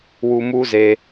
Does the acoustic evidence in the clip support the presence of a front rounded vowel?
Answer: no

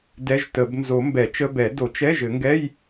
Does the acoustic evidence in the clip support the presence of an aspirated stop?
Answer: no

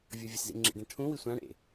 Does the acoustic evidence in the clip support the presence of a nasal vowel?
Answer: yes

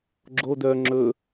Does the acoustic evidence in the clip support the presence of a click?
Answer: yes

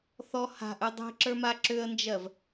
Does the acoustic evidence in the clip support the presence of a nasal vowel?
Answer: no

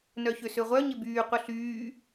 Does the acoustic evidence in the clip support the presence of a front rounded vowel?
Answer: yes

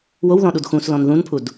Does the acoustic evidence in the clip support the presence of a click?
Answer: no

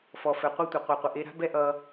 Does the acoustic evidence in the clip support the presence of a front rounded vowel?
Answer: no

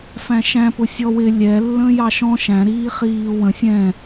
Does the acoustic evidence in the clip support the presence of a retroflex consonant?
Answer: no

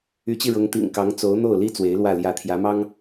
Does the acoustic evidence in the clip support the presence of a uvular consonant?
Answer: no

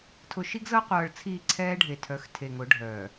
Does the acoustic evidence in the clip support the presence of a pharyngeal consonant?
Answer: no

